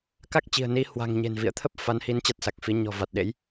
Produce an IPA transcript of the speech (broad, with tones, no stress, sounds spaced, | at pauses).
k a˦˥ k̚ t͡ɕ i̤˨˩ ə̯ n i˨˦ h w a̤˨˩ ŋ ɲ e̤˨˩ n v ḭ˧˨ ə̯ t̪ʰ ə˦˥ p̚ f a˨˦ n h i˨˦ n t͡ɕ a˦˥ t̚ s a˨˩ k̚ f i˨˦ ɲ ɔ̤˨˩ v a˨˩ t̚ ɗ ḛ˧˥ j